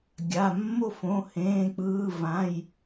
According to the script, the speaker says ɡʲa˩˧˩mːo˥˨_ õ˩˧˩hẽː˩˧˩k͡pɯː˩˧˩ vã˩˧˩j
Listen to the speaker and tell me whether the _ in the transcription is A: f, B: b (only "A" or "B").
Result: A